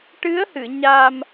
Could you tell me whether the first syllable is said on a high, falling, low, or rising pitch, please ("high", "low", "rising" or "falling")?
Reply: rising